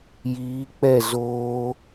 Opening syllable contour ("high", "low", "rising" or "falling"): rising